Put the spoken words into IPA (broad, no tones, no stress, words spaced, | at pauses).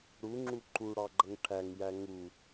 ɽuŋ͡ǁu ǃuɽɑɡ͡ǃʌŋ ʈʰæŋjæ ŋu